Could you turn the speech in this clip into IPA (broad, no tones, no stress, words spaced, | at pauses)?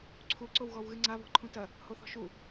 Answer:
ǀʰuǀow ɣɔwɣɨŋ͡ǀa βɔ̤ǃʰũtɐ | hoθɔ̤ʃu